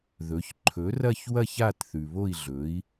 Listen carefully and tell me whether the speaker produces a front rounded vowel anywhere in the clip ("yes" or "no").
no